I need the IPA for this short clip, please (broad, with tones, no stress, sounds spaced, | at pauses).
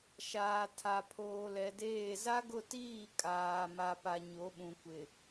ʃ aː˨ tʰ a˨ pʰ oː˨ l ɛ˨ d eː˦˨ z a˦ ɡ ʊ˦˨ t iː˦˨ kʼ aː˨ m a˨ p a˨ ɲ o˨˦ ɓ ũ˨ kʷ ɪ˨